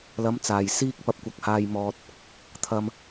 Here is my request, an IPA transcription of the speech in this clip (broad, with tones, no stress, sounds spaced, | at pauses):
l ɐ˨˥ m t͡s aː˨˩ j s iː˧ k̚ p ɐ˧ p̚ kʷ ɐ˨˥ k̚ h aː˧ j m ɔː˨ t̚ | t̪ʰ ɐ˧ m